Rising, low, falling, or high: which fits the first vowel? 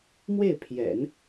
falling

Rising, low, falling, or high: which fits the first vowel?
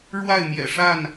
falling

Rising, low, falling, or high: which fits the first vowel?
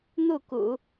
falling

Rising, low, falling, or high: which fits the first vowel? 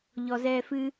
low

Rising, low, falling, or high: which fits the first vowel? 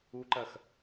high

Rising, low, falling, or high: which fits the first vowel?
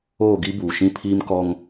falling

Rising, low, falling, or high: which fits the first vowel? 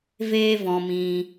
high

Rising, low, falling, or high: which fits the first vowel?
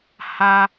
high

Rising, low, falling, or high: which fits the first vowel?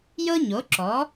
high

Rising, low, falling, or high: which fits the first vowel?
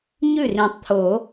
falling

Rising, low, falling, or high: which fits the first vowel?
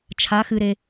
rising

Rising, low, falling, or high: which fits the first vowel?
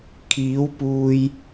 rising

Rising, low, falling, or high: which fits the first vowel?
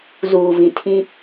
low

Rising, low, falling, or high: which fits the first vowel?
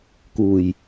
low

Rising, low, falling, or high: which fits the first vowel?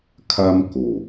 high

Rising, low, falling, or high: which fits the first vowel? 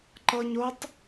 high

